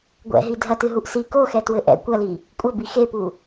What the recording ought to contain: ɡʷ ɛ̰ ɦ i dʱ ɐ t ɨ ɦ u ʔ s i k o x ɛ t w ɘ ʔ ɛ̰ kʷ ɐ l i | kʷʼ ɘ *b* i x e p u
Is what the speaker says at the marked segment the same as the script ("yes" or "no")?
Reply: yes